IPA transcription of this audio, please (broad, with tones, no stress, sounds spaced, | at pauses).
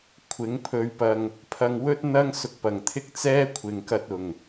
kʷʰ ɪ˨˥ ŋ pʰ ɵ˧ ɥ p ɐ˧ ŋ | pʰ ɐ˧ ŋ w ɵ˥ t̚ n̪ ɐ˥ ŋ s ʊ˧ k̚ p ɐ˨˩ ŋ t̪ʰ ɪ˥ k̚ t͡s ɛː˥ kʷʰ ɪ˨ ŋ k ɐ˧ t̚ ʊ˨˩ ŋ